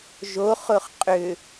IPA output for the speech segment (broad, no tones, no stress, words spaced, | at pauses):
ʒoχʊχ qʼʏ